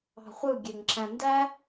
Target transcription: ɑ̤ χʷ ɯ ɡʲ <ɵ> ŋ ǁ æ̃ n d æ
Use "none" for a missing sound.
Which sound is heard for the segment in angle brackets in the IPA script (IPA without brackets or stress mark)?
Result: ø